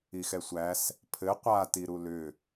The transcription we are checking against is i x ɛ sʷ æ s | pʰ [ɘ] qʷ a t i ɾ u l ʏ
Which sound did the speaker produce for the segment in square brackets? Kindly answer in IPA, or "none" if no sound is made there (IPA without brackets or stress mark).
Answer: ɘ